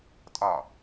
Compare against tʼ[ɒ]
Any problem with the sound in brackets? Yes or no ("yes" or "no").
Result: no